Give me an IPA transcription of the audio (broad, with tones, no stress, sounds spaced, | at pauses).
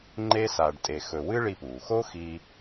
ŋ͡ǃ e˥ s a˧ ɖ tʼ e˧ x ɵ˧ w ɨ˥ ɭ i˧ p uː˩ x o˥ x iː˧